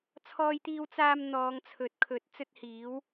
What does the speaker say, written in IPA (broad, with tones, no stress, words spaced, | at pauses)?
t͡sʰɔː˧jt̪iː˧w t͡saː˧m n̪ɔː˨˧ŋt͡sʰɵ˨˥t̚kʰɵ˨˥t̚ t͡sɵ˥t̚hiː˨˥w